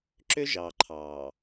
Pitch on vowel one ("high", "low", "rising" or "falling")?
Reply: high